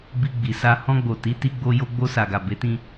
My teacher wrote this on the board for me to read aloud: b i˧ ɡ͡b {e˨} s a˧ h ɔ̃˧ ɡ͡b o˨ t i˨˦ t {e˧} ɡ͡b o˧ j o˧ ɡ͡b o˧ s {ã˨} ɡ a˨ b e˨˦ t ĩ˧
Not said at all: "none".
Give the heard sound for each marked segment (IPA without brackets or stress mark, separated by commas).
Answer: i˨, i˧, a˨